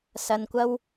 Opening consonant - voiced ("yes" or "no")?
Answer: no